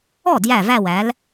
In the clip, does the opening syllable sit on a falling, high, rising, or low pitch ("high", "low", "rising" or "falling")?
falling